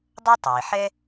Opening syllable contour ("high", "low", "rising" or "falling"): high